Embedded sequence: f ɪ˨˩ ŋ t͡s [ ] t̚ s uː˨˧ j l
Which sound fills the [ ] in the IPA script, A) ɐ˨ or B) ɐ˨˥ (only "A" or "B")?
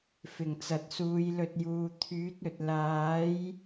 A